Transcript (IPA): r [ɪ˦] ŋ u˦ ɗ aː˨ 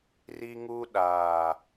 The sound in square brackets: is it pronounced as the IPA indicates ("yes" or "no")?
no